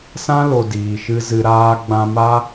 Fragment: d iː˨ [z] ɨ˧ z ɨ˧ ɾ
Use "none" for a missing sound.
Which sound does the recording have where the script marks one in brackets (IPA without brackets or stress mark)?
ʃ